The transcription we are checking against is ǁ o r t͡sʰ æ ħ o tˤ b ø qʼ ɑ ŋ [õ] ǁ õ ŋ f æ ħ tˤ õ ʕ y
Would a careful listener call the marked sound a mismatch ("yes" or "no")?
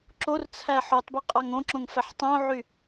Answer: no